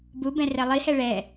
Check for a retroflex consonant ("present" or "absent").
present